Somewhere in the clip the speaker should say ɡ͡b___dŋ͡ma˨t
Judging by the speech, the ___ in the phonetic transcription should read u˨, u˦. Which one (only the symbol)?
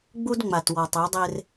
u˦